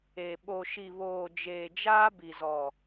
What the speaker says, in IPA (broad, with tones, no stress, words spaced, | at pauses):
e˨ ɓo˨ʃi˨βoː˨ d͡ʒeː˨d͡ʒaː˦bi˨zɔ˨